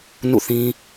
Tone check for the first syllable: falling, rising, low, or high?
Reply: falling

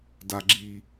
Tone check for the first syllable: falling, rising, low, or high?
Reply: high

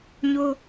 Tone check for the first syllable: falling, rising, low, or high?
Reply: high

